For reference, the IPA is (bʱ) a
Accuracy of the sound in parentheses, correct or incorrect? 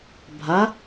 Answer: correct